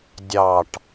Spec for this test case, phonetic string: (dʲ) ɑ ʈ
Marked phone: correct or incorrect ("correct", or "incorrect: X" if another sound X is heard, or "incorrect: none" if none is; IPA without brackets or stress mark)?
correct